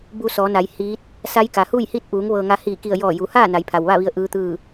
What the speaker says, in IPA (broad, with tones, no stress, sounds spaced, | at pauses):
b u˧ s ɔː˩˧ n a˩˧ j h iː˧˥ t̚ | s a˧˥ j k a˩ h uː˥˨ j h i˥˨ t̚ ʔ uː˩˧ ŋ ʋ ɤː˧ ŋ a˧˥ h iː˧˩ k i˧˩ ə̯ j ɔː˧˩ j u˩˧ h aː˥˨ n a˩˧ j pʰ a˩ w ʋ a˥˨ ʋ i˧ ə̯ ʔ ɯː˧˥ t̪ ɯː˥˨